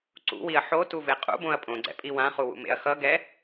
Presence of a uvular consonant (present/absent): present